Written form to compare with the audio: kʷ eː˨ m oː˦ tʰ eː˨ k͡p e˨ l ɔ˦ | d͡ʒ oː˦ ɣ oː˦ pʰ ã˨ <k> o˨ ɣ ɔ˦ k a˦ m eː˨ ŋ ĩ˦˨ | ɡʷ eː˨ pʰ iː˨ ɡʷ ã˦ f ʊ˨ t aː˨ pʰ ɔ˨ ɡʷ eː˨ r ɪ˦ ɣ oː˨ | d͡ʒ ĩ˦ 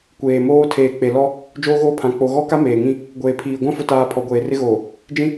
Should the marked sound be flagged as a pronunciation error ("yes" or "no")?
yes